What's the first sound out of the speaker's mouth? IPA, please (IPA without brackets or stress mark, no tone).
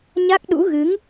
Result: ɲ